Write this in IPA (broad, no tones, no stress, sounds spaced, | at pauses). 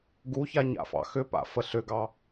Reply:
ɡ u ç a ɲ a̰ f ɑ̰ x ʏ p a̰ f ə ɬ ʏ ɡ ɑ